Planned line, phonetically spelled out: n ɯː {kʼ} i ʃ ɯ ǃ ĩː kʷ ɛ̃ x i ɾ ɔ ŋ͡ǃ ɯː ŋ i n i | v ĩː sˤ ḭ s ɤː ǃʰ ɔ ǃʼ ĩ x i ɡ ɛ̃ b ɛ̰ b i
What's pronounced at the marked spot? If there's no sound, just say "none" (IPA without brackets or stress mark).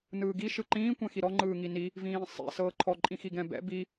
ɡ